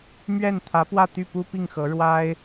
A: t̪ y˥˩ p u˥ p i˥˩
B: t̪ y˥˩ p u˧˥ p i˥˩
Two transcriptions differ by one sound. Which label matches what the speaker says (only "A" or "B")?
A